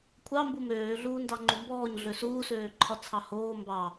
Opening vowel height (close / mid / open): open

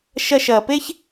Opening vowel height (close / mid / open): open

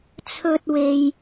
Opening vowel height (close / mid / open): mid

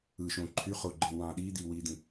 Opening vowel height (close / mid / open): close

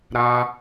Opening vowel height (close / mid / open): open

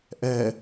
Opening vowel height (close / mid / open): mid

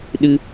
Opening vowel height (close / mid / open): close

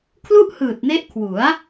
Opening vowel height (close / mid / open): close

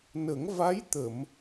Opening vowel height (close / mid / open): mid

